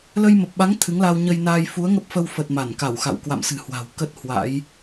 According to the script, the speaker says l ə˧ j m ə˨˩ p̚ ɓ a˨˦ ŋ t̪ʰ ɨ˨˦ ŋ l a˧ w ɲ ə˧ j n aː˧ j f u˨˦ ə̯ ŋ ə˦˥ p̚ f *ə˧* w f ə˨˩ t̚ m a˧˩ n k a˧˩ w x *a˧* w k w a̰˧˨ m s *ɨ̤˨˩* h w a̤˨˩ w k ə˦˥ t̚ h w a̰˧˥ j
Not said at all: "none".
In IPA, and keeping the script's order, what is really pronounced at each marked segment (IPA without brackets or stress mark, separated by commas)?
ə˧, a̰˧˨, ɨ̤˨˩